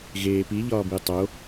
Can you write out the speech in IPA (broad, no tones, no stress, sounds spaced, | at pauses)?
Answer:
ɣ eː p i ʎ ɒː b i tˤ o